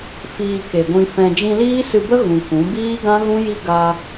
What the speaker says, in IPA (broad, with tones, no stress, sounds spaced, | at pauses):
f iː˧ k e˨ ɡʷ ĩ˧ f ɛ̃˧ d͡ʒ ĩ˧ l iː˦ s ɨ˧ b ə˦ ɣ ũ˨ k ũ˨˦ b iː˦ ɡ ã˦ ɣ ũ˦ j i˦ ɡ a˧